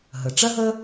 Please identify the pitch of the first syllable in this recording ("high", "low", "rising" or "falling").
low